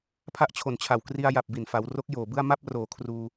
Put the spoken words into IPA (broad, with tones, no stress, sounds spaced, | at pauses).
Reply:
pʰ a˥˩ ʔ t͡ɕʰ o˨˩ n t͡ɕʰ a˨˩ w k r i˧ a̯ j a˨˩ p̚ b i˨˩ n f a˩˦ w r o˦˥ k̚ j oː˨˩ b ɯ˥˩ a̯ m a˥˩ p̚ r oː˩˦ kʰ r uː˧